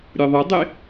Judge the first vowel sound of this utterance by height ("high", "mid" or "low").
mid